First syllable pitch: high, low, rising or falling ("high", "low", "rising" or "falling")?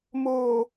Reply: low